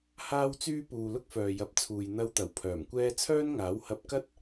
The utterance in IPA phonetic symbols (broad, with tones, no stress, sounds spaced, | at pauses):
h aː˥ w t͡s yː˥ p uː˨ l ʊ˥ k̚ f œː˨ j ɐ˨˥ p̚ t͡sʰ uː˨ j n̪ ɐ˧ w t̪ ɐ˨˩ w pʰ œː˨˩ m kʷ ɛː˥ t͡sʰ œː˥ n ŋ aː˨˥ w h ɐ˧ p̚ k ɐ˥ t̚